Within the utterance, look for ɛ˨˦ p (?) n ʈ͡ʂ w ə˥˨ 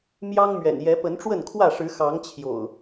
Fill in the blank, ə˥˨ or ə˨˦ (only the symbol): ə˨˦